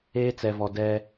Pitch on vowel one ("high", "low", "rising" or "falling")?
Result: high